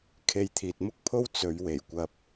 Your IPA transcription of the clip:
kʰ e˧ j t̪ʰ iː˨ t̚ m ʊ˥ k̚ pʰ o˥ w t͡s ɵ˨˧ ɥ w e˨˩ j kʷ ɐ˧ p̚

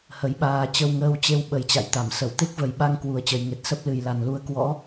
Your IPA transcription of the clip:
h ə˨˦ j ɓ aː˧ t͡ɕ ə˧ w ŋ əː˧ w t͡ɕ e˧ w ɓ ə˨˩ j t͡ɕ a̰˧˨ j t̪ a˧˩ m s ə˧˩ w t̪ e˦˥ k̚ v ə˨˩ j ɓ a˧ ŋ k w u˨˩ ə̯ t͡ɕ ə˨˩ j ŋ e˨˩ t̚ s ə˦˥ p̚ l ɨ˨˩ j l a˨˩ n l u˧ ə̯ k w ɔ̰˧˥

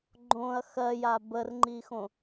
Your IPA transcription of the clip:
ɡ͡ǃ õ ɐ̯ x ɜ j a b ə r ŋ͡ǃ i x õ

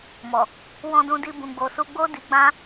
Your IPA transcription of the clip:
m ɔ˨ | w ɔ̃˧ d ũ˧ d i˧ b ũ˨ ɡ͡b o˨ s u˧ ɡ͡b o˦ d i˧ ɡ͡b ã˦

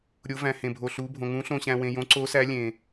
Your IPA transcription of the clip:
ɾʲ o˨˦ v æ̃˨ h ẽ˨ bʱ o˨ ɬ u˨˦ bʱ õ˨ ŋ ũ˨˦ ɬ õ˨ ɕ æ̃˨ w ẽ˨ j õ˨˦ ǀ o˨˦ s æ˨˦ lʲ ẽ˨

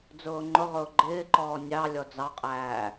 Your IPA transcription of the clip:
d͡z ʊː ŋ͡ǃ ʊ ʁ ʊː ɡ͡ǃ ɪː ǃ ɔː nʲ ɑ lʲ ɔ d͡z ɑ qʼ æː

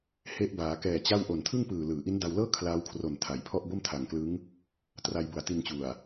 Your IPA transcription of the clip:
h e˦˥ ʔ b aː˩˦ k ɛː˨˩ t͡ɕ a˥˩ w ʔ o˨˩ n tʰ ɯ˥˩ ŋ p ɯː˨˩ l ɯː˩˦ ʔ i˦˥ n d a˧ w l ɤː˥˩ kʰ l aː˦˥ w kʰ r o˨˩ n tʰ a˩˦ j pʰ ɔ˥˩ ʔ b o˥˩ m tʰ a˨˩ ŋ k l ɯ˦˥ ŋ | t r a˧ j b u˨˩ a̯ t i˧ n t͡ɕ u˨˩ a̯

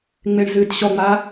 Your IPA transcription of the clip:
ŋ͡m e ɳ z ɨː d ɕ ɔ ŋ͡m a

